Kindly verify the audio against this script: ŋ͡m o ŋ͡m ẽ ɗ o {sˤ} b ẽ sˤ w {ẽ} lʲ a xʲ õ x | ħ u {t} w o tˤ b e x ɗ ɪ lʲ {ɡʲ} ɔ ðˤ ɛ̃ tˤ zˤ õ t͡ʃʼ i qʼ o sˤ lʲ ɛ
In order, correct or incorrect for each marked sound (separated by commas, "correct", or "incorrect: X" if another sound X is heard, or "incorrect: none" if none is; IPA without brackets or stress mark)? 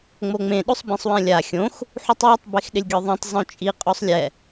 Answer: correct, incorrect: ɛ̃, incorrect: tˤ, correct